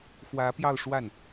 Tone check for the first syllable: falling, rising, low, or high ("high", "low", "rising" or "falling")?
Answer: rising